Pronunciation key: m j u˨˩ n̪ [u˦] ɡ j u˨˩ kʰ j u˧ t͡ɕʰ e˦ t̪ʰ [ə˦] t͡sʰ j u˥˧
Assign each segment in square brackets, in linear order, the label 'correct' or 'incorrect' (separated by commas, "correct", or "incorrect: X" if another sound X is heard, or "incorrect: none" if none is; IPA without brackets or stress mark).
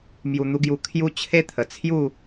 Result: incorrect: u˧, incorrect: ə˨˩